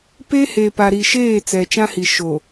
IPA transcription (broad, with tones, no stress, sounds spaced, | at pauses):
p e˦ h e˨ p a˨ ɾ i˨ ʃ eː˦˨ t͡s ɛ˨ t͡ʃ ã˦ h i˨ ʃ o˨